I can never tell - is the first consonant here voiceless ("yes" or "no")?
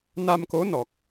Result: no